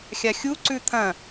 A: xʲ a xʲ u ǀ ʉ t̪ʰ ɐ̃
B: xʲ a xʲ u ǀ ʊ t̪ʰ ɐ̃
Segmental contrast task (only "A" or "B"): A